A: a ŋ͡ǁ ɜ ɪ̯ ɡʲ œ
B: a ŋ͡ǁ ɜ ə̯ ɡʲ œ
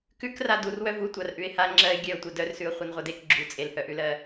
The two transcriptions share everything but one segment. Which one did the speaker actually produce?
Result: A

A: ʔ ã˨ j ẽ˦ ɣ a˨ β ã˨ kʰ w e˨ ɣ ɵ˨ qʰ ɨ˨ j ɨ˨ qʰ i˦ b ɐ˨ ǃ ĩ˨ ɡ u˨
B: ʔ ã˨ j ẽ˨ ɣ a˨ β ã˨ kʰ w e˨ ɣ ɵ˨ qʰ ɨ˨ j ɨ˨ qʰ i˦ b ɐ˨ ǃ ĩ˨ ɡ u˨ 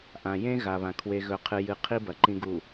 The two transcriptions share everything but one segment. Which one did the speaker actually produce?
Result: A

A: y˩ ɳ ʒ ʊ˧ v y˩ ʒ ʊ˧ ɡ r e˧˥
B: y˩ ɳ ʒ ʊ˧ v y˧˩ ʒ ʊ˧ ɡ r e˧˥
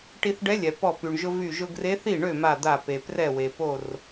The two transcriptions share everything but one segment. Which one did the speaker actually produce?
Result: B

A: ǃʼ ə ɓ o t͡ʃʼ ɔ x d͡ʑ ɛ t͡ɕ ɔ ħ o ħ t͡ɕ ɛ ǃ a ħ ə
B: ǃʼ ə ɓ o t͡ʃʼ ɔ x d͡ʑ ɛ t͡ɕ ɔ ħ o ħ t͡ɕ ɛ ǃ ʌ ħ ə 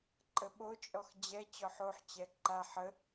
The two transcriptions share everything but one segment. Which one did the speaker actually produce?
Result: A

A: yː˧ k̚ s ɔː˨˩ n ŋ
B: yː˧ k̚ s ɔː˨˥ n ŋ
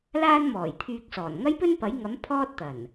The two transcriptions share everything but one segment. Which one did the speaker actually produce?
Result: A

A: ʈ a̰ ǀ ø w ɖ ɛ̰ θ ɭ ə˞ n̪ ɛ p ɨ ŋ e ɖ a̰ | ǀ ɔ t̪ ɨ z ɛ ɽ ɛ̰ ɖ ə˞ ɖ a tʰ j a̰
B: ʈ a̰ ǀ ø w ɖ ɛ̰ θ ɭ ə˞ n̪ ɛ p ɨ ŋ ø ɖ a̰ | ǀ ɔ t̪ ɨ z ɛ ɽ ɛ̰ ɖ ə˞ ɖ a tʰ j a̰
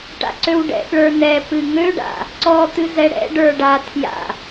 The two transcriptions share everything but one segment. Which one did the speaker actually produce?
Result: B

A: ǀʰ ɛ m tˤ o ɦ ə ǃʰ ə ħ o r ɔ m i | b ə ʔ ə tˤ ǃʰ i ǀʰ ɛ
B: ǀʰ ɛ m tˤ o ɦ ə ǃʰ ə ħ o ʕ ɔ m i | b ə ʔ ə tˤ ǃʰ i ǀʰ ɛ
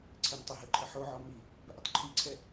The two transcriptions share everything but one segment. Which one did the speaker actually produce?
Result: B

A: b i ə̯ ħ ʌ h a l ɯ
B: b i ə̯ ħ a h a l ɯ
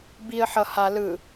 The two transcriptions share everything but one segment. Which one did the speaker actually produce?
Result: A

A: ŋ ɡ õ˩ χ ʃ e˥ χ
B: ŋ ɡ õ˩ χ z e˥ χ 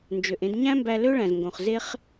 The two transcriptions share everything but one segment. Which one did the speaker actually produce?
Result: B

